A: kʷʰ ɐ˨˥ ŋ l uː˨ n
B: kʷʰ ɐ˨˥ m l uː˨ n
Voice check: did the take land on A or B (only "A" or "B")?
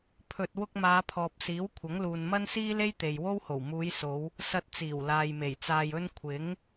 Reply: A